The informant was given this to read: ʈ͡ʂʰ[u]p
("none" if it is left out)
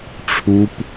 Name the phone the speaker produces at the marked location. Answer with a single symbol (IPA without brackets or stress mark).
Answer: u